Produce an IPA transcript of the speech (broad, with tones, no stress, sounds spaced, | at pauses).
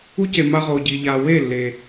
u˦ c e˨ m a˧ ʁ o˨ ɟ i˨ ʎ a˨ w e˦˨ lː e˨